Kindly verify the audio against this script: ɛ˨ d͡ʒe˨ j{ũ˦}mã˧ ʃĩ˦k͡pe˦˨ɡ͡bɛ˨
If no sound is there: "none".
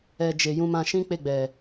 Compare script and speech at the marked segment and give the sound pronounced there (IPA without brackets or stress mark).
ũ˧